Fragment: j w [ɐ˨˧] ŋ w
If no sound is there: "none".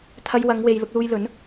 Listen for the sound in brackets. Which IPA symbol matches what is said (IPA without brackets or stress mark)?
ɐ˨˧